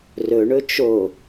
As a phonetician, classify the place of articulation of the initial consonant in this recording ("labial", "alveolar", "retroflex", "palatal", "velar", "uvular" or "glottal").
alveolar